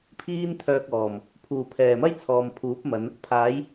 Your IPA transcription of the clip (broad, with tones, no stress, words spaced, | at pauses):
pʰiː˥nt̪ʰœː˧k̚ ɔː˨˩m | pʰuː˨˩pʰɛː˨˩mɐ˥j t͡sʰɔː˨mpʰuː˨˥p̚mɐ˨˧n | pʰaː˨˥j